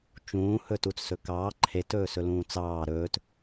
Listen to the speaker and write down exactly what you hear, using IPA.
t͡ʃ ũː h ɵ t u t͡s s ɵ k ɑː ǃʰ e t ɵː s ɵ l ũː t͡s ɑː ɾ ɵː t

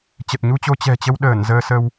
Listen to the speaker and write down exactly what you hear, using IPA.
t͡ɕ ə˨˩ t̚ ɲ u˧ t͡ɕ o˧ t͡ɕ ɛ̤˨˩ t͡ɕ ə˧ w ɗ əː˧˩ n z əː˧ s ə˧ w

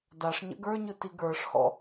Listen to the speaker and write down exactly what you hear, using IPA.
d a ʂ ɲ ə̰ ɡ ə˞ ɲ ɯ t i ɡ ə˞ ʂ h ɔ̰

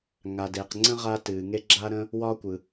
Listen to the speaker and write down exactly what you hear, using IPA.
ŋ a˩ d e˩ q ŋ͡ǀ ə̃˥ ʁ a˥ t ɨː˩ ŋ e˥ ɡ͡ǁ a˥ ɾ ə̃˥ | w ɒː˥ kʷ ɯ˩

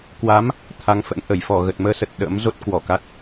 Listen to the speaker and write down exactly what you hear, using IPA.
k w a˨˦ m | t̪ʰ a˧ ŋ f ə̰˧˥ n ʔ ə˧˩ j f ɔ˧˩ ɣ ə˨˩ t̚ m əː˧ s ə˨˩ t̚ ɗ ə̰ː˧˥ m z o˦˥ t̚ k w ɔ˧˩ k a˦˥ t̚

